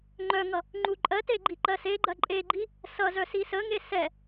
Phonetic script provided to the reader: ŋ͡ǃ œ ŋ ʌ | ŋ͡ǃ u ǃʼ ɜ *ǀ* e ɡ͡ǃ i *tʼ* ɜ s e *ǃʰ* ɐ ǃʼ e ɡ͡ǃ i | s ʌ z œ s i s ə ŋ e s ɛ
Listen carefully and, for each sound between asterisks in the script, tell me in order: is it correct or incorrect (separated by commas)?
incorrect, incorrect, incorrect